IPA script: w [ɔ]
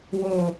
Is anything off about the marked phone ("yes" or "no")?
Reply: yes